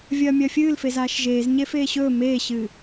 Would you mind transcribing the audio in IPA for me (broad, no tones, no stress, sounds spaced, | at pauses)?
vʲ ɐː mʲ ɐː fʲ ɨː l f e z aː ʃ ʒ eː z ɲ e f eː ɕ ɵː m eː ɕ ɨ